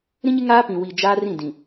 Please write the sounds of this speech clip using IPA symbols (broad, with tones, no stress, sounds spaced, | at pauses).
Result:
ɾ ĩ˦ ɲ ɪ˦ ŋ aː˦ p ĩ˨ w i˨ d͡ʒ aː˦ r ĩ˦˨ d ĩ˨